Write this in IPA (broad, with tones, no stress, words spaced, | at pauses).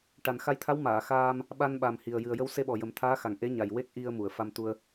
ʈa˨˩nxa˧jt̪ʰa˧˥w maː˨˩˨xaː˧m | ɓa˧nɓa˨˩mhi˨˩ə̯ jɨ˨˩ə̯jə˧wse˧ ɓɔ˨˩jə˨˩˦mt̪ʰaː˧˥xa˨˩ŋ ʔe˧˥ɲa˨˩j we˦˥k̚ʔi˧ə̯ mu˨˩˨ə̯fa˧mt̪u˧ə̯